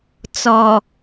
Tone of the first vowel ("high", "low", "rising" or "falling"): low